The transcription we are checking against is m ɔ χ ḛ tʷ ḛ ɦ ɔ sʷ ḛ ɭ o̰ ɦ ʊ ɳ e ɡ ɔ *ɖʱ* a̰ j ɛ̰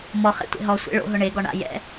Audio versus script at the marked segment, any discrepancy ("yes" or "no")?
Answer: yes